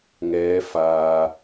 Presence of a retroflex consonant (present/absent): absent